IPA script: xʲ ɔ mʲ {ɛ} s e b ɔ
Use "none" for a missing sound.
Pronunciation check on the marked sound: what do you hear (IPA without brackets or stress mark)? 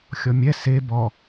ɛ